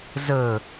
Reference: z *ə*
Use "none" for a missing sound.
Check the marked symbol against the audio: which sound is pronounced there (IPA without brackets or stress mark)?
ə